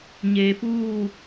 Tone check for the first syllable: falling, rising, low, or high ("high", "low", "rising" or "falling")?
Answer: low